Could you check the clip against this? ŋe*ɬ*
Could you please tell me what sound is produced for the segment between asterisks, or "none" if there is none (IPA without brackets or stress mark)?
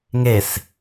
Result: s